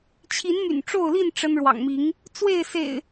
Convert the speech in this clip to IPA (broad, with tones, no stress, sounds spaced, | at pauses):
t͡ɕʰ i˨˦ n m y̰˨˩ n ʈ͡ʂ o˥˨ ʊ̯ l i˥˨ n ʈ͡ʂ ə˦ n ɻ w ɑ̰˨˩ ŋ m i˨˦ ŋ | t͡s w e˥˨ ɪ̯ s ḛ˨˩ ɪ̯